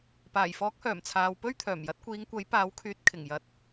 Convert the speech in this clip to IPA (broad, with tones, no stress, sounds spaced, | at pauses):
p aː˨˩ j f ɔː˨˥ k̚ h œː˨˩ m t͡sʰ aː˨ w p ɵ˥ ɥ t̪ʰ œː˨˩ m j ɐ˨˥ t̚ kʷ iː˨˧ ŋ kʷ ɐ˨˥ j p aː˨˧ w kʰ yː˨˥ t̚ kʰ ɪ˨˩ ŋ j ɐ˨˥ t̚